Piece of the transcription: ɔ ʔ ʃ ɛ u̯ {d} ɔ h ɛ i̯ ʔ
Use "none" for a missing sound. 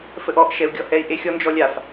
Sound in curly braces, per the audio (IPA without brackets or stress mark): ɡʲ